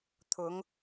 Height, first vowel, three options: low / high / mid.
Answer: high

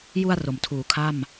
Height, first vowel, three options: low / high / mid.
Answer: high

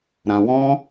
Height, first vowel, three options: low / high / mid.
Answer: low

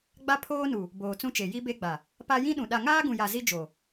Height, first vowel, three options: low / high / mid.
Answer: low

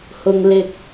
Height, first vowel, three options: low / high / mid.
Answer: high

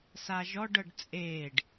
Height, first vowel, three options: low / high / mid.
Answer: low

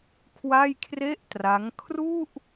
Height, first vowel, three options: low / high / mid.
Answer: low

